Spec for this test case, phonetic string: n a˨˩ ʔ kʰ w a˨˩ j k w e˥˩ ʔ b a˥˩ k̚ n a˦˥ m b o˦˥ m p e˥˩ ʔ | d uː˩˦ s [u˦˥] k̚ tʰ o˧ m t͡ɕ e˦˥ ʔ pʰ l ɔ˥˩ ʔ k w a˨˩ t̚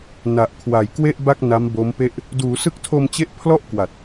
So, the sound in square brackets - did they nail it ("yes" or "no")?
no